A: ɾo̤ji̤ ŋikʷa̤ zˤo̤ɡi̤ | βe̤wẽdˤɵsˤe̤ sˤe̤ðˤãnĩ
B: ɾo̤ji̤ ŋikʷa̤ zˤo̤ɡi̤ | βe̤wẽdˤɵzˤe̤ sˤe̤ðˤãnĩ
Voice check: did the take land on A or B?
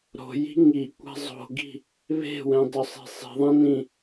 A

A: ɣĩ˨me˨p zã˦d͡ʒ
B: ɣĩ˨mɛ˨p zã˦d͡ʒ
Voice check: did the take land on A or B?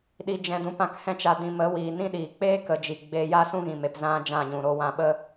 A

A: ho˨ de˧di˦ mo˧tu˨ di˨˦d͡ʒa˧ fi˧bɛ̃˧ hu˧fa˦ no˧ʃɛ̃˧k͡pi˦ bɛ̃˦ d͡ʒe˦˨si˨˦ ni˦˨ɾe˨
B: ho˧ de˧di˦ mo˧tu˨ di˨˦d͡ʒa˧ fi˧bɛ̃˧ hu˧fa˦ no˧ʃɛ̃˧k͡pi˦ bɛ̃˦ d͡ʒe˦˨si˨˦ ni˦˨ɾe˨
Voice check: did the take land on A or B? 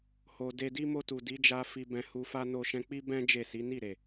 A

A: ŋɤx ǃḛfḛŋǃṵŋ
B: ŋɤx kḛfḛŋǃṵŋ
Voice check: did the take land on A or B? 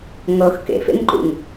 B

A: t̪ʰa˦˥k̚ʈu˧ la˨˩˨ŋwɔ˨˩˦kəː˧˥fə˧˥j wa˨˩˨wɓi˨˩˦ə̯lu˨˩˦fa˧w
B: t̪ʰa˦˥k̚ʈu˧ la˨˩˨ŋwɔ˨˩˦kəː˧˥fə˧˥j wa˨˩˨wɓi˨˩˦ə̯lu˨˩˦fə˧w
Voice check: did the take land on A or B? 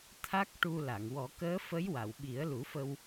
B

